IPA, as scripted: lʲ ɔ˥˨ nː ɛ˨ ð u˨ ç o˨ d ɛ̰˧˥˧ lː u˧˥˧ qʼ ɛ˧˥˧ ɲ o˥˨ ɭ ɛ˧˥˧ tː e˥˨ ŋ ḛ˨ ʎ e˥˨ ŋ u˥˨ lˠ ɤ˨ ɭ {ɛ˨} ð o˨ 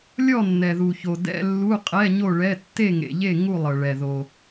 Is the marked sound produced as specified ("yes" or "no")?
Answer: yes